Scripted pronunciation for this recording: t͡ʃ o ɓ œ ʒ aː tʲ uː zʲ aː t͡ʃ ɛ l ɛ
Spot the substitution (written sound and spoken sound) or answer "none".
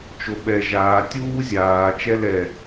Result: œ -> ɛ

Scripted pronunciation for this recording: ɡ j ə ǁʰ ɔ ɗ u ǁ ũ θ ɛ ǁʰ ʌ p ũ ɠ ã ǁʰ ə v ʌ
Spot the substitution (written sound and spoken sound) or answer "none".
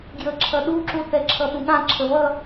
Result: ɔ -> ʌ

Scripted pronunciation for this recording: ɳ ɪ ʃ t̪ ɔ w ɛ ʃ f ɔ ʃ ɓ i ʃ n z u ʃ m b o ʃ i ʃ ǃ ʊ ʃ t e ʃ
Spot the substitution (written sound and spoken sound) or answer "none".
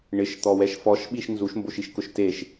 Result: ǃ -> k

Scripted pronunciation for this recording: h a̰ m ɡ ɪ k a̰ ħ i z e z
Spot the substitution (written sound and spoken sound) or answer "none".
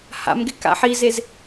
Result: none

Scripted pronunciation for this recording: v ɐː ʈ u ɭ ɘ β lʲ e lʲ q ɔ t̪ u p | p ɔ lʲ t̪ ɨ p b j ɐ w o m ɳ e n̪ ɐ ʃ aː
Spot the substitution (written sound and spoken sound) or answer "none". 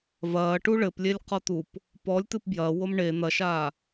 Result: β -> p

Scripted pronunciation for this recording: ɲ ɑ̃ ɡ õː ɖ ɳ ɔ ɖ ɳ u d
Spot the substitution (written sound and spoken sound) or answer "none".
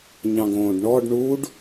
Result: d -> ɖ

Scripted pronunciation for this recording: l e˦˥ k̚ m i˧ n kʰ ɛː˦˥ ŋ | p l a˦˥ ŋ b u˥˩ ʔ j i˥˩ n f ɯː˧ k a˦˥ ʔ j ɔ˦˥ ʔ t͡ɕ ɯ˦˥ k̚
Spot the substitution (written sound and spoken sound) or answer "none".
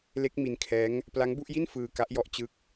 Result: none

